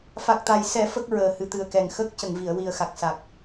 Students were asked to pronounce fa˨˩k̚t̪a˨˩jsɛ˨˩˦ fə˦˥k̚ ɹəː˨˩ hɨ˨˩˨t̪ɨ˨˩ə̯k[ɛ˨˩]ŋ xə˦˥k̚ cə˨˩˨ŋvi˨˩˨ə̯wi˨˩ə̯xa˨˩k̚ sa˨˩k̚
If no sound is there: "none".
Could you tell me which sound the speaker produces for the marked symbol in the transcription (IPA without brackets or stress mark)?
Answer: ɛ˨˩